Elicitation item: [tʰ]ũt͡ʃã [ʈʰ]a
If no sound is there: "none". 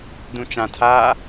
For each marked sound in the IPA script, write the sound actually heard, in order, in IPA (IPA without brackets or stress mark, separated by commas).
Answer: d, tʰ